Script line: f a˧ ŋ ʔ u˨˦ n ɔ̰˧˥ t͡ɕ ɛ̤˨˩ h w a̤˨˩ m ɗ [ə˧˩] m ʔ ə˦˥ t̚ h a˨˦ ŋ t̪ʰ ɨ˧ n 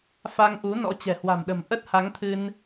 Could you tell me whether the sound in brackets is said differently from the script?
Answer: yes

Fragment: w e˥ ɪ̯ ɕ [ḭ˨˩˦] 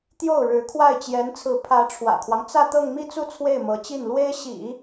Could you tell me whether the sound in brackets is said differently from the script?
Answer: no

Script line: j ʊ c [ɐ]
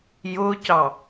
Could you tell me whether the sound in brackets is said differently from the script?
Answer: yes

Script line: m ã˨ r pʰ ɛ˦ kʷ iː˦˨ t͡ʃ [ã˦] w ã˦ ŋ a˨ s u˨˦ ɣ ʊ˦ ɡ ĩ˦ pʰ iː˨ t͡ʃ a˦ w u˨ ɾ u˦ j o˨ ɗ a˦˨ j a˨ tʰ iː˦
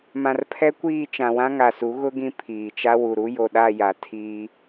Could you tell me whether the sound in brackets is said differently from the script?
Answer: yes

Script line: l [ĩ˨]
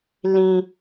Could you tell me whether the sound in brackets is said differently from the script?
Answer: no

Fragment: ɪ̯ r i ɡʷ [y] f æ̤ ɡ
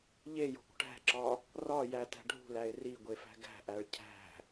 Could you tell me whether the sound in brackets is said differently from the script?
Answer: yes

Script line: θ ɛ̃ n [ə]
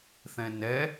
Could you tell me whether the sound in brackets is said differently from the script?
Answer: yes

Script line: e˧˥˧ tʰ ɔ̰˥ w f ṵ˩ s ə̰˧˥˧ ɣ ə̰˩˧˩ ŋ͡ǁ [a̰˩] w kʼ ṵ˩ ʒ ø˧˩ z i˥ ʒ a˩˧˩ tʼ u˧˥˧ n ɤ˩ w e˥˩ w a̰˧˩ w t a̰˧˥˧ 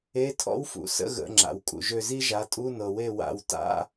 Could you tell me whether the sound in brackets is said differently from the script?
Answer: no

